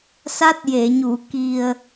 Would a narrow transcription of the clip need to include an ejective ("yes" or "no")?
no